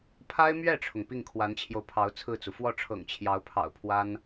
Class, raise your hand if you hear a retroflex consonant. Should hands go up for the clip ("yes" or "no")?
yes